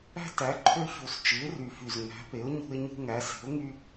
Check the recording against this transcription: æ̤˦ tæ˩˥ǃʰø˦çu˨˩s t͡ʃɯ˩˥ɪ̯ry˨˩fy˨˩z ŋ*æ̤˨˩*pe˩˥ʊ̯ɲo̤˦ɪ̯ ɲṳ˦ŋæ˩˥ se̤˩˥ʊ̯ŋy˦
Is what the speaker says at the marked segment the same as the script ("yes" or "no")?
no